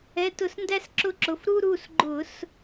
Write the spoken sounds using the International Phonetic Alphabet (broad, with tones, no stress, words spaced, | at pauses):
ɛ˩˧˩tʊ˧˩˧sndæ˦s ǁʊ˥˨ǁʊ˩˧˩f ɾu˦ɾu˩˧˩sɡ͡ǃʊ˧˩˧s